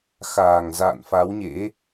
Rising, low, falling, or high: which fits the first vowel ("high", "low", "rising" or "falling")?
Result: low